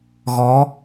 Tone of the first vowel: rising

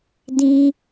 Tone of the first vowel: high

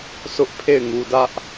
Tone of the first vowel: high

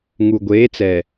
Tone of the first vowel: low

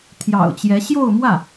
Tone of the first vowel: low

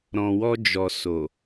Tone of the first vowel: low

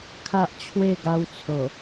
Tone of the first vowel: high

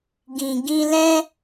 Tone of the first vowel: low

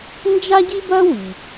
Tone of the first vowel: high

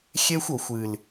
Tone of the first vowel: high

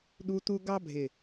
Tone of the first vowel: high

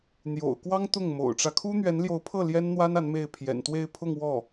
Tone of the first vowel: low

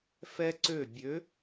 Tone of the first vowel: high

